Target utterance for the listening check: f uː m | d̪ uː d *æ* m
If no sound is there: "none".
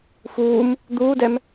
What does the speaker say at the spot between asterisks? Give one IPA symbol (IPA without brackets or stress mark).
ɛ